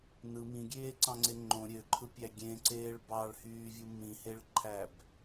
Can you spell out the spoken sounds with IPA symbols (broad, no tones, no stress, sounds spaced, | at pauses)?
n ɯ m ĩ ɡʲ eː ǀ ɑ̃ ŋ͡ǀ e ŋ͡ǃ õ ɾʲ ø ǃʰ ɯ pʲ æ ɡʲ ẽ ǀ eː ɭ b ɑ ɭ h yː vʲ u m ĩ h e ɭ ǃʰ æ b